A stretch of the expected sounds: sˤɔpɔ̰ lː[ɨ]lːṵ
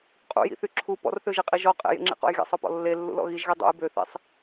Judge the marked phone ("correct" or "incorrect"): incorrect